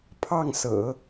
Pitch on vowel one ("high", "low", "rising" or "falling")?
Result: falling